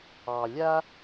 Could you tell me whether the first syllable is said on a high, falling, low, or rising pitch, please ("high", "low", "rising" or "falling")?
low